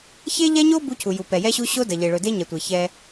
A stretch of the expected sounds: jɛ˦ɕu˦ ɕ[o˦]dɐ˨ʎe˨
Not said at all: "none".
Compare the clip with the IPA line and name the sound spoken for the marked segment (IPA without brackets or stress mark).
o˦